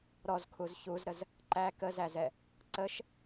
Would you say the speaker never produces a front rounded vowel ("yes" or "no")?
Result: yes